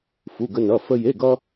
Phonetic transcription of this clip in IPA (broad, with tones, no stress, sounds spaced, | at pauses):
f u˧˥˧ ɡ ə˥ n ʌ˧˥˧ f ə˥ j e˧˥˧ ɡ ʌ˥